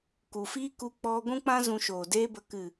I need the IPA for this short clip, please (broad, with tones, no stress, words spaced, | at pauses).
ku˨fiː˦ ku˧k͡pɔ˧ ɡʷũ˦k͡pã˦ zũ˧ʃoː˨deː˦bə˧ kɨ˨